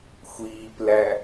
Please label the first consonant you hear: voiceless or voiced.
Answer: voiceless